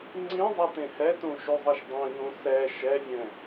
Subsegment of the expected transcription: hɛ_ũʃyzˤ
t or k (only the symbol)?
t